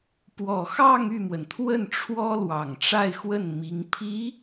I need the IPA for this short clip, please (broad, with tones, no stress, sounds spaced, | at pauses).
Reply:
p w ɔ˨˩ x ɑ˥˧ ŋ y˥˩ m w ə˩ n t̪ʰ w ə˥˩ n ʈ͡ʂʰ w ɔ˥ l w ɑ˨˩ ŋ ʈ͡ʂ a˥˧ ɪ̯ x w ə˥˩ n m i˧˥ ŋ pʰ i˧˥